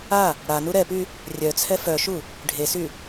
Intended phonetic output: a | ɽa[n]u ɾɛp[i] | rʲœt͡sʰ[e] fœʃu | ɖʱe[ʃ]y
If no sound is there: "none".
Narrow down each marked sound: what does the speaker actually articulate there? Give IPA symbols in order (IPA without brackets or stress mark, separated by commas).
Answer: n, y, ɛ, s